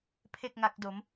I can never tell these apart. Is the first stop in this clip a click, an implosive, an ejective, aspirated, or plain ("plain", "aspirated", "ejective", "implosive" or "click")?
aspirated